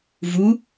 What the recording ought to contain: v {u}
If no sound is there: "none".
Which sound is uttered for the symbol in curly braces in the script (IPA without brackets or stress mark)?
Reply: u